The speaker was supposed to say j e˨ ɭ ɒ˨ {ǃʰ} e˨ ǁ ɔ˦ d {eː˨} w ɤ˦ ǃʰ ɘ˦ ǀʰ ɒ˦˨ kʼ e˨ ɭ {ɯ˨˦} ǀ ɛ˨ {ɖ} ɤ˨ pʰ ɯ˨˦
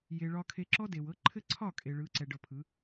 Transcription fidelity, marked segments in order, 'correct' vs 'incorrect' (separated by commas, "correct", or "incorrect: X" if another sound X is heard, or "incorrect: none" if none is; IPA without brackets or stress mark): incorrect: kʰ, incorrect: e˨, correct, correct